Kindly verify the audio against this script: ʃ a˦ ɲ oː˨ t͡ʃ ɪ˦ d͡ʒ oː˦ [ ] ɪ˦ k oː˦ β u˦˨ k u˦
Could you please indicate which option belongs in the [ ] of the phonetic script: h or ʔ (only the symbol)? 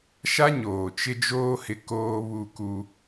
h